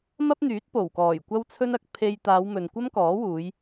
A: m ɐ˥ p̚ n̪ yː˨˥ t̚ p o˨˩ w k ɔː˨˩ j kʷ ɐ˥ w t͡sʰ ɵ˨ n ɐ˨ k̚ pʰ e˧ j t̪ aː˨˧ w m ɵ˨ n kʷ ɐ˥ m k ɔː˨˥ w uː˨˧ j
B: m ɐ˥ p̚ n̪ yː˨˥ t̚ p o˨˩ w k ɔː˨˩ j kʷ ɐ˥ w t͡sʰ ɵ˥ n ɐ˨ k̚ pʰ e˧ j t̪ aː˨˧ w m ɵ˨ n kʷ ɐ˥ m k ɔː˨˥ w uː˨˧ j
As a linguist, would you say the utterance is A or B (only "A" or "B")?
B